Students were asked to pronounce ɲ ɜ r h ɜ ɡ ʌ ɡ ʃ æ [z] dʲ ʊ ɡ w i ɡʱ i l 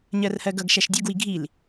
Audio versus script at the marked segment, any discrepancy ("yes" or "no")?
yes